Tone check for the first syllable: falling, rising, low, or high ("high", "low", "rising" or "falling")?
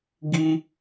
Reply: high